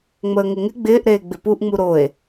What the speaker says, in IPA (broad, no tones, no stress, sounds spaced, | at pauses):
ŋ͡m əː ŋ ɪ ŋ ɪ ɡ͡b ɪː ʔ ɾ eː ɡ͡b ɪ p u ʔ ŋ͡m u ɾ o e̯